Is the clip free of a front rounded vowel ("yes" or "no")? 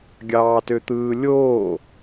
no